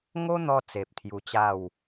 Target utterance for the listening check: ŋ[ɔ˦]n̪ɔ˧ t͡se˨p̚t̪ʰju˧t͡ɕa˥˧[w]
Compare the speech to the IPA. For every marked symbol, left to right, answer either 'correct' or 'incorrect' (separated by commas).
incorrect, correct